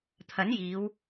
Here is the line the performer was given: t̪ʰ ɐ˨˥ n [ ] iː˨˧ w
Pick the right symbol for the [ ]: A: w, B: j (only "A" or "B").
B